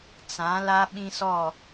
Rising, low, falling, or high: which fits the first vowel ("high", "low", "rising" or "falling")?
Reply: rising